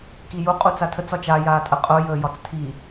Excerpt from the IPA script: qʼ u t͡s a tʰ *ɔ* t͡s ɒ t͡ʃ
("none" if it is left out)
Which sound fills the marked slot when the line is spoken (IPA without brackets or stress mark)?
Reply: ə